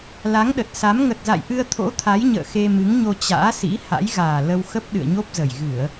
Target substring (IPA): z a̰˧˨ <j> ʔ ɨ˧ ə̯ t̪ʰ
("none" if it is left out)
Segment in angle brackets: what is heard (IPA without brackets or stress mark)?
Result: j